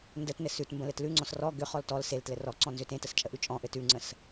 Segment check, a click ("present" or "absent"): present